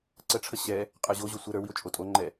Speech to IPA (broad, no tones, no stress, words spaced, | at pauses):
ǀəʈ͡ʂʰə ɕɛ | qʼə˞ʑoʑo sʷə ɾə˞wio̯ t͡ʃʼotʼoŋ͡ǃɛ